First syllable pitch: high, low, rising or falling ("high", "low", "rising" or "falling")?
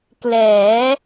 rising